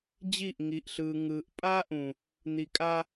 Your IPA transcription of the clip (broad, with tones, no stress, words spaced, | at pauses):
d͡ʑi˦˨ʔŋi˨ʔɬɯː˨ ŋɯː˨ʔ pʼa˦ʔũ˨ | n̪i˨kʼa˦